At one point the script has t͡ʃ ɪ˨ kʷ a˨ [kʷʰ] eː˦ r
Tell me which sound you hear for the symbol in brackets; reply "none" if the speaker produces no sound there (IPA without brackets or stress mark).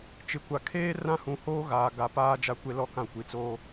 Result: kʰ